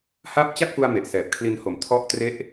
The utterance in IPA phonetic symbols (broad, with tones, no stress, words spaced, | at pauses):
ha˦˥p̚t͡ɕa˥˩k̚fu˧a̯ me˨˩ʔsɛː˨˩p̚kʰli˦˥nho˨˩m tʰɔ˥˩ʔ tre˦˥ʔ